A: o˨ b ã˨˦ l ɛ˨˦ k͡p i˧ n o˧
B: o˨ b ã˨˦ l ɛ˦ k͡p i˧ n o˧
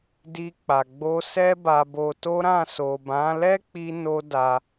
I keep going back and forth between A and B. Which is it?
B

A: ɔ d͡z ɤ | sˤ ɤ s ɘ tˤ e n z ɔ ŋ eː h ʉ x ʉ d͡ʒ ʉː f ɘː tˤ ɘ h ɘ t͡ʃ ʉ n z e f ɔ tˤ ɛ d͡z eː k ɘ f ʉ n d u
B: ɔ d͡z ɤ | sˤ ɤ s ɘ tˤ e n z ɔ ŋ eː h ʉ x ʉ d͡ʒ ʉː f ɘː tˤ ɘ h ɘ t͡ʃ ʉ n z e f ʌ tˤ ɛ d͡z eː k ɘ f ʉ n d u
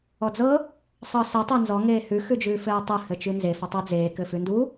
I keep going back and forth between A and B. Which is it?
B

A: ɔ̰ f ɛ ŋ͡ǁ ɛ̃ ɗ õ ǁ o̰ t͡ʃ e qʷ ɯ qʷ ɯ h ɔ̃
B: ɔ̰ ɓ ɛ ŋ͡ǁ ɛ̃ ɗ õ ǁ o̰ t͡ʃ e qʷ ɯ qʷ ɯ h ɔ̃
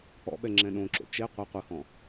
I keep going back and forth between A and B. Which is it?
B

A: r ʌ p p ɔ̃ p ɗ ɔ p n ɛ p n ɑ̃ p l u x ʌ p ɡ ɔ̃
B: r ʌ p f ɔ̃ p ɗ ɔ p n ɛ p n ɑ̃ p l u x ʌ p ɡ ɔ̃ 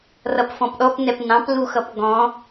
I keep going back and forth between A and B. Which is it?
B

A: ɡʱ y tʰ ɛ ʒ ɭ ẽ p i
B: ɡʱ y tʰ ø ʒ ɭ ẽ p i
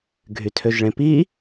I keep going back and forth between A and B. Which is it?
B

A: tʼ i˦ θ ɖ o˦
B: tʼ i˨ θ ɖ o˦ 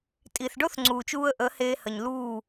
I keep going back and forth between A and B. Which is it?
B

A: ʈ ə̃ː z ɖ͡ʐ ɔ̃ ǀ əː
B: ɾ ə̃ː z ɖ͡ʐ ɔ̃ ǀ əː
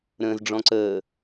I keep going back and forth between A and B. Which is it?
B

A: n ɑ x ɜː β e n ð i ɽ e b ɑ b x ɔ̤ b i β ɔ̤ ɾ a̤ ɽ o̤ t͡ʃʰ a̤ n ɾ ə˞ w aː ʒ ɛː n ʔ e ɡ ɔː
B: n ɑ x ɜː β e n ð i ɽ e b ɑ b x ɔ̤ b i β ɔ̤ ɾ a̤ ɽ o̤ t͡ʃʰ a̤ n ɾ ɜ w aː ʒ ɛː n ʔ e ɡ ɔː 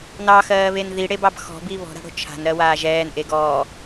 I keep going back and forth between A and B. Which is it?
B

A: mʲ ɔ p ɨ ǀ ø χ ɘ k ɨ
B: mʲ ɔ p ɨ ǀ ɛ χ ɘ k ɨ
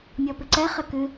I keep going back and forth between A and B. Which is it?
B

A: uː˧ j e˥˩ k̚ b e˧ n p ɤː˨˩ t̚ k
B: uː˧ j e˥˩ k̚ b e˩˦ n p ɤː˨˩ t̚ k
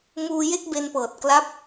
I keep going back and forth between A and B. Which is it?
A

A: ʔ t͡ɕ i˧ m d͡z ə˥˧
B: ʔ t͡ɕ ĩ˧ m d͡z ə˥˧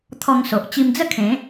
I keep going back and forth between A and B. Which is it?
A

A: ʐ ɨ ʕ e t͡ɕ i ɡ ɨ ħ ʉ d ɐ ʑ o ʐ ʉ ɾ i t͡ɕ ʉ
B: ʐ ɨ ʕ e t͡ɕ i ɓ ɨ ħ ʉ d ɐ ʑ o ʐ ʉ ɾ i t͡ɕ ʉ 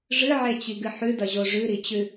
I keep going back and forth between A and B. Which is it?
A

